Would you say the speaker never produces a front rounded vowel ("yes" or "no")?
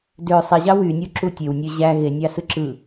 no